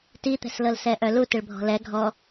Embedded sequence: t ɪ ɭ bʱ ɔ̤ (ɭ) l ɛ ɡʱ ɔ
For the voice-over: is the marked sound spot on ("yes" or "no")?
no